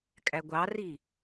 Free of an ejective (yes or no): no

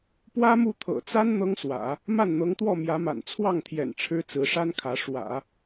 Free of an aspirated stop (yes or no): no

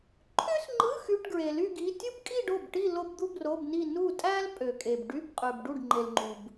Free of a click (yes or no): no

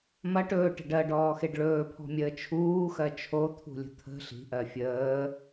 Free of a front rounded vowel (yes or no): yes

